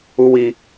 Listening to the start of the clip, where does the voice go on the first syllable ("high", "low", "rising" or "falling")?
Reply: high